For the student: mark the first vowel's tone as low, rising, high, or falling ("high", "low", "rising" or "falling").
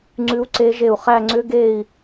rising